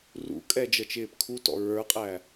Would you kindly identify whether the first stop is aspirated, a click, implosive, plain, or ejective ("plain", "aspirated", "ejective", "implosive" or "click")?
ejective